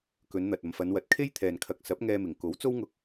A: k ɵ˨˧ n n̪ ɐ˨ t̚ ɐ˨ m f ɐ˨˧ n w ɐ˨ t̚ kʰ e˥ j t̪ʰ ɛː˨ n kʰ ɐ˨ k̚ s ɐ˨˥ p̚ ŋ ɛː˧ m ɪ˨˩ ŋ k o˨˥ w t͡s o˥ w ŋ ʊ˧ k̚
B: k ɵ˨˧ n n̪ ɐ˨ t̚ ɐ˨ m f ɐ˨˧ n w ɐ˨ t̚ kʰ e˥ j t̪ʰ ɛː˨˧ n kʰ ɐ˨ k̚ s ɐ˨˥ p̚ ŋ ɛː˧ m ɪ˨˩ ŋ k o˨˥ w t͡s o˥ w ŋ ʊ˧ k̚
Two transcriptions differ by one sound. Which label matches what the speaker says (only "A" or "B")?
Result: A